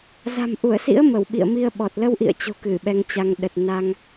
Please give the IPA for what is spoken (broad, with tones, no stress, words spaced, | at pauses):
za̤˨˩mʔu˧˩ə̯sḭ˧˥ə̯ mə˧˩wɓḭ˧˨ə̯mi˧ə̯ɓɔ˨˩t̚ lə˧wʔḭ˧˨ə̯t͡ɕo̤˨˩ kɨ˧˩ɓɛ˧ŋt͡ɕa˧ŋ ɗə˨˩t̚na˧ŋ